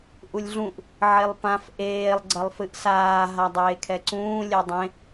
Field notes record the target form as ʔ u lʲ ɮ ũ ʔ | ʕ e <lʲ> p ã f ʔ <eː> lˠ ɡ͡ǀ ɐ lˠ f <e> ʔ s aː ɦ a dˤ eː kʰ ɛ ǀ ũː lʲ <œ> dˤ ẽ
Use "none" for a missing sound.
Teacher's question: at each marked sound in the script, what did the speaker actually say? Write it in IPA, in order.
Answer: lˠ, eː, ɨ, ɛ

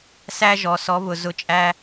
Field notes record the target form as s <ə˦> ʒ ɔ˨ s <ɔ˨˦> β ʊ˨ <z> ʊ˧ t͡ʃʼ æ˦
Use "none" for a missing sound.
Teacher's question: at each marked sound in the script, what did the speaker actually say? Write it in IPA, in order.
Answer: æ˦, ɔ˨˦, z

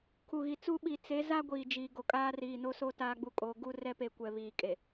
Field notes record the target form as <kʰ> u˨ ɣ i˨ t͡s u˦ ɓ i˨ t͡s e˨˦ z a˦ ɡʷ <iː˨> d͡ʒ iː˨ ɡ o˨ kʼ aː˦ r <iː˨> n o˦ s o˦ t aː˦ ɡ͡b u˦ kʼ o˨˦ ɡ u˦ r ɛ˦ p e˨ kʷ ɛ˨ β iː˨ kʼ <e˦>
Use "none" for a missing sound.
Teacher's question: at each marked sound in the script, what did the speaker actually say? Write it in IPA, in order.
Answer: kʰ, iː˨, iː˨, e˨

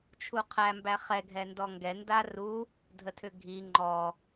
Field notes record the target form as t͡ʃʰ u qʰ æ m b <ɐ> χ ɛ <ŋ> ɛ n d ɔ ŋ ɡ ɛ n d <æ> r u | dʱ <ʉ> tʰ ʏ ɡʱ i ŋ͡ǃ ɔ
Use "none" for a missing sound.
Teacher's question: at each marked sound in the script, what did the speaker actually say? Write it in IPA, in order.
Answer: æ, ɡʱ, a, ə

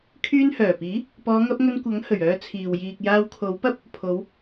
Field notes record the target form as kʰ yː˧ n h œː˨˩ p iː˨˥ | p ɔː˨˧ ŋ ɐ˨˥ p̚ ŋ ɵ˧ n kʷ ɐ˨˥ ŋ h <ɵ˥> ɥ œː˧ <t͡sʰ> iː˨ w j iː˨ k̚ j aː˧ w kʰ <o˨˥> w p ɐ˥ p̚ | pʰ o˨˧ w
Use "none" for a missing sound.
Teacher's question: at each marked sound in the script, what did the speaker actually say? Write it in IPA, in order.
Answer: ɵ˨˩, t͡sʰ, o˨˥

